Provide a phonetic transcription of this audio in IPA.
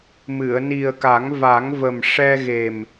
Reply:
m ɨ˨˩˨ ə̯ n i˨˩ ə̯ k a˨˩˦ ŋ v a˨˩˦ ŋ v ə˨˩ m ʂ ɛ˧ ɣ e˨˩ m

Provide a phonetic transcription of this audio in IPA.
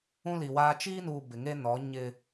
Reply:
ũ˦ l i˨ w aː˦ t͡ʃ iː˦ n uː˨ b ɪ˨ ŋ e˦ n ɔ˨˦ ɲ ɪ˦

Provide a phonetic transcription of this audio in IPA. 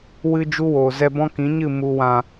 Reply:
w ɨ˧ d͡ʒ u˦ w oː˨ z ɛ˧ b ɔ̃˦ k ĩ˨˦ ɲ ɨ˦˨ m u˨ w ã˨

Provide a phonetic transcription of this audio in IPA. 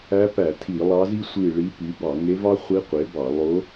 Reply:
æ˧˥ p æ˧˩˧ tʰ i˧˩˧ lˠ ɑ˧˥ z i˥ sʷ i˦˨ ɭ i˧˥ p y˩˥ b ɑ˧˩˧ ŋ e˧˥ v ɑ˥ χʷ i˧˥ qʷ e˩˥ b ɑ˧˩˧ lˠ o˧˥

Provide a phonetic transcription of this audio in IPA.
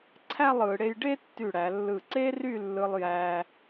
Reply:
ǀʰ æ˥˧ lˠ ɯ˩˧ ɽ e˧ j ɖ e˥ tː y˧˩ ɽ æ˩˧ lː ɯ˧˩ ǀ e˥ r y˥˧ lː ɯ˧ lˠ j æ˧

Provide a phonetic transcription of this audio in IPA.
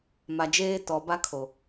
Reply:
m a˨ d͡ʒ eː˦ t ɔ˨ b a˦ kʰ o˨

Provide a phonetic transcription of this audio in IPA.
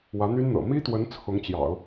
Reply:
w ä˧˥ n̪ y˥ n n̪ ɤ̰˨˩ m i˥ t̪ w ə˧˥ n t͡sʰ ʊ˧˥ ŋ t͡ɕ j ɑ̰˨˩˦ ʊ̯

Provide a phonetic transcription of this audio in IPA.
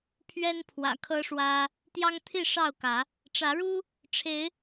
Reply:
pʰ ɥ ɛ˦ n pʰ w ä̰˨˩ kʰ ɤ˦ ʂ w ä˦ | t̪ j ɑ˦ ŋ t̪ʰ i˥˨ ʂ ɑ˥˨ ʊ̯ k ä˨˦ | ʈ͡ʂ ä˨˦ ɻ u˦ | ʈ͡ʂʰ e˨˦ ɪ̯

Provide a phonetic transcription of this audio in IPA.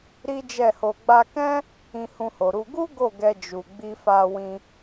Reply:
ɾ i˦ d͡ʒ ɛ˦˨ h o˧ ɡ͡b a˧ k ɛ̃˦ | ĩ˧ h ũ˧ h o˨ ɾ u˧ ɡ u˦ ɡ o˦˨ ɡ ɛ˧ d͡ʒ u˨ ɡ͡b i˧ f a˧ w ĩ˧

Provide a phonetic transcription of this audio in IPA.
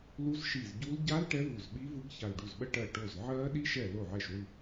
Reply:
l u˦˥ z ʃ i˧˩ z ɟ u˦˥ l ɟ a˦˥ l ʈ ɛ˦˥ v u˧˩ z ɓ i˦˥ v ɯ˦˥ ɡ ç a˧˩ l ɖ u˧˩ z ɓ ə˦˥ ʈ ɜ˧˩ ʈ o˧˩ z ʕ ɜ˦˥ ɗ i˦˥ ʃ ɛ˧˩ l o˧˩ ʕ ɛ˧˩ ʃ w ɯ˧˩

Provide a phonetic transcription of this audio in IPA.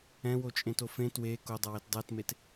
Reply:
ɛ̃ w o t͡ʃʼ ẽ t o f ẽ t w e k o dˤ ʌ w e t dˤ ɛ t m e t

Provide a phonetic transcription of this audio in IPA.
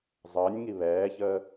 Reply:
zˤ əː nʲ ŋ i β ɛː ç əː

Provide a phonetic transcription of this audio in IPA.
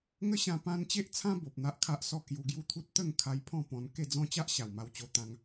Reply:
ŋ ə˦ ɕ ã˧ p ã˦ n t͡ɕ e˦ ʔ t͡sʰ ã˦ b o˨ p̚ n̪ a˦ ʔ kʰ a˦ ʔ s ɔ˥˧ k j u˧ ɡ j u˦ t̪ʰ u˦ t̚ t̪ ə˥˧ ŋ kʰ a˧ j pʰ ɔ̃˥˧ p ɔ̃˧ n k e˥˧ d͡z ɔ̃˦ t͡ɕ a˦ ʔ ɕ a˨˩ w m a˧ w t͡ɕ o˧ t̪ ã˦ ŋ

